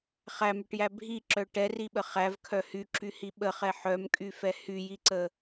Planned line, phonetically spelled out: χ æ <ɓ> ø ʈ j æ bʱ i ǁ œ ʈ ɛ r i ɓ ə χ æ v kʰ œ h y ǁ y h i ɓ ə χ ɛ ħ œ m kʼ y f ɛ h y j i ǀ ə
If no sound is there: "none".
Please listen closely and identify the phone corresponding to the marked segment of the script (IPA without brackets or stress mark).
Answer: m